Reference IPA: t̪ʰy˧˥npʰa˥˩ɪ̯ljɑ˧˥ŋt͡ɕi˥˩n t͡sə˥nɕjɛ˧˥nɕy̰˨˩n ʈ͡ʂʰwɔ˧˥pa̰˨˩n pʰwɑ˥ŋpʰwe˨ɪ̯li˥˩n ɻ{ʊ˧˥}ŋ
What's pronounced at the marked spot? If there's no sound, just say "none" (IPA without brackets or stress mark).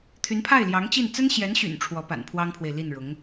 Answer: ʊ˧˥